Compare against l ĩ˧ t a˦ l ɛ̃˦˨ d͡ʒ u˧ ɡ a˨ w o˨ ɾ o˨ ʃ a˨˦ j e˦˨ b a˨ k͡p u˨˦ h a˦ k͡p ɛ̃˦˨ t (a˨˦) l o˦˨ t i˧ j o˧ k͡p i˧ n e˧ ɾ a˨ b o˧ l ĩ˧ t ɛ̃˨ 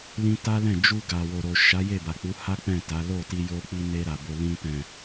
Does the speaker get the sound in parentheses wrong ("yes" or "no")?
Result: no